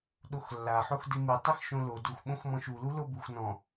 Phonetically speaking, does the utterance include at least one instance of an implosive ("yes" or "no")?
yes